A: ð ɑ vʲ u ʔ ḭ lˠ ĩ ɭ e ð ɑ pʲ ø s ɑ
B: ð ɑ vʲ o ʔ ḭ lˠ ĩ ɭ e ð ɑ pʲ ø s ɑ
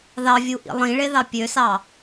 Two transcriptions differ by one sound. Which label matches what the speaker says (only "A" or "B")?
A